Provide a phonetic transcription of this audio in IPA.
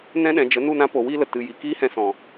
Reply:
n ɛ̃˦ ɗ ɛ̃˨ d͡ʒ ə˨˦ n u˦˨ n ã˦ p o˨ w iː˦ l ə˨ t ɨ˨ j i˨ k iː˦ h ɛ̃˧ s ɔ̃˨

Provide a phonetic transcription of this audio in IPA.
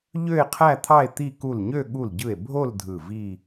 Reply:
ʎ ø˥˧ e̯ qʰ æ˥˧ t̪ʰ ɑ˥˧ e̯ t̪ i˥˧ k u˧˩ l ɲ ø˥˧ ɠ u˧˩ l ɟ ɯ˧˩ e̯ bʱ o˥˧ l dʱ ɯ˧˩ v i˥˧

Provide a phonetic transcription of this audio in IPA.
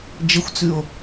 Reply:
d͡ʒ ə xʷ t͡s ʉ o̯

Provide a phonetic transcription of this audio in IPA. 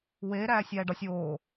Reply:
w eː ɾ æː sʲ æː ɖ ɒ sʲ oː

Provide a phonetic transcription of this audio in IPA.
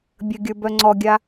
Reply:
bʲ ə ɡʲ ə˞ b œ ŋ͡ǀ ɔ ɡʲ a

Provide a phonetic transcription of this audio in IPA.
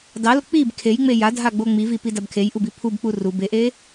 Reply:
d ɑ l o k͡p i b kʰ e j ŋ͡m e j a dʱ a ɡ͡b o ŋ͡m i v i p i d a b kʰ e j ʔ u b i pʰ u b k͡p u r u b e ʔ e

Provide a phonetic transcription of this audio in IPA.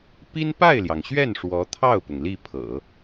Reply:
p i˥ n p a˥˩ ɪ̯ l j ɑ˩ ŋ ɕ ɥ ɛ˥˩ n ʂ w ɔ˧˥ t̪ʰ ɑ˥˩ ʊ̯ p ʊ˩ ŋ l i˥˩ pʰ ɤ̰˨˩˦

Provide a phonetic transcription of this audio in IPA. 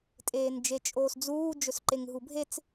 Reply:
tʼ eː n d͡ʒ e t͡ʃʼ oː s d͡z uː d͡ʒ ɵ s ǃ e ŋ ɦ u bʱ e t͡s

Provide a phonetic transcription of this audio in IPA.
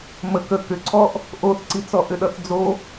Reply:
m ə k ə k ʏ ǀʰ ɔ ʔ | ʔ o θ ǀ i t͡s ɔ ʔ ʏ ɗ ʌ θ d͡z o

